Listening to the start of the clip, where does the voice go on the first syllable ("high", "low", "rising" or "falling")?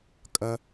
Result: low